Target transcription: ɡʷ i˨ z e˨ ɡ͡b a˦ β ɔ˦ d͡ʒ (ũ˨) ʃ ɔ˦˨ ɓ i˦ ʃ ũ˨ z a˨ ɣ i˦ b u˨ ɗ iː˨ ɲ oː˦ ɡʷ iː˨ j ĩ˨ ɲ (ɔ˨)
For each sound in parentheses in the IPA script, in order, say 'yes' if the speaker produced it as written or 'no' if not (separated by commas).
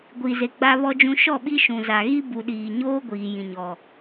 no, yes